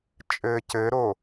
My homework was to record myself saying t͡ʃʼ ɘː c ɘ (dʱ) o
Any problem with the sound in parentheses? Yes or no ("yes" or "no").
yes